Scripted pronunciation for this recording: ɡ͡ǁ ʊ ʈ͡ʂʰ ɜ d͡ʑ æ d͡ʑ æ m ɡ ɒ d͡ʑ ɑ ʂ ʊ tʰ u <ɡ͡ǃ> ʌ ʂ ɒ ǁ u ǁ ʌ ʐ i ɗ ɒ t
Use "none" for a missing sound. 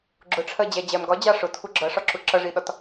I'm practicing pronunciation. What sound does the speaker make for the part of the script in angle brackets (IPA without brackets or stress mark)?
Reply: ɡ͡ǁ